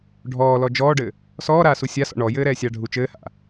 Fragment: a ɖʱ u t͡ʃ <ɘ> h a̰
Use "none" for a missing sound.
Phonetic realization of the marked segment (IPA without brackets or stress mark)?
ɘː